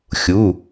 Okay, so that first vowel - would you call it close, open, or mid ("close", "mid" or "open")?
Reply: close